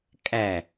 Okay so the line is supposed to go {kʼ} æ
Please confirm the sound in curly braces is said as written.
yes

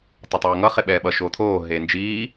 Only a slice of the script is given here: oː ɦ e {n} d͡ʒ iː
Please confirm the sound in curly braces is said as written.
yes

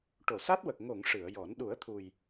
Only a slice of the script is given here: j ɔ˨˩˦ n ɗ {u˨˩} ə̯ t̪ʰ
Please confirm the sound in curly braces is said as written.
no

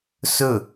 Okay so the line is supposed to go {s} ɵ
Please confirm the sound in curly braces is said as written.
yes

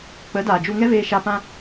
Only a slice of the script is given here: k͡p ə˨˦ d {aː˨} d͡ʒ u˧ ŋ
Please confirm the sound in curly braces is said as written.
yes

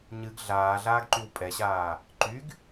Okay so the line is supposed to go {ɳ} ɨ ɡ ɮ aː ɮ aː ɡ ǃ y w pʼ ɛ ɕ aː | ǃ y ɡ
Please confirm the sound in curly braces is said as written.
no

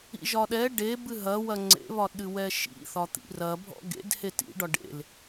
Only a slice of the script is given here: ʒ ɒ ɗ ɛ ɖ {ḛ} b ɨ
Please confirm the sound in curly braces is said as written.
no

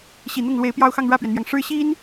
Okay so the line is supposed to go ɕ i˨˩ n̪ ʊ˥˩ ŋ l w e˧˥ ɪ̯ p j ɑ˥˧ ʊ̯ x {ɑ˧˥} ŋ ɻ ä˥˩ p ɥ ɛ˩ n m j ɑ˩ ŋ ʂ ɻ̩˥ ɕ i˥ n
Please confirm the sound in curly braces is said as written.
no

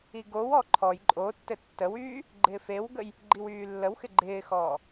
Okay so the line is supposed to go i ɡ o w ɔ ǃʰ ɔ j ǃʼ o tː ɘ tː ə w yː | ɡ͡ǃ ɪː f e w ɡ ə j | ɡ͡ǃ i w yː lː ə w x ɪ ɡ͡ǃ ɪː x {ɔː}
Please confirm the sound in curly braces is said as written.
yes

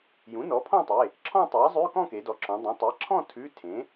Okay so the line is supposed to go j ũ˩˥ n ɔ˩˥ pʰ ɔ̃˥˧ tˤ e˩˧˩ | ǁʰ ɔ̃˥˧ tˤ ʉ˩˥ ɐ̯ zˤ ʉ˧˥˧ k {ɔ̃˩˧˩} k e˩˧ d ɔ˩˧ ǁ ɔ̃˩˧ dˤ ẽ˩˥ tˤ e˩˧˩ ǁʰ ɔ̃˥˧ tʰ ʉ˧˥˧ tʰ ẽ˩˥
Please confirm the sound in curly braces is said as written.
no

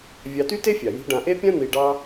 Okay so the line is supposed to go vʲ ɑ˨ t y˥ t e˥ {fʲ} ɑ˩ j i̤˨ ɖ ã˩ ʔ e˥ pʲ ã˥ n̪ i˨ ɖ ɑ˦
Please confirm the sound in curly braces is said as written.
yes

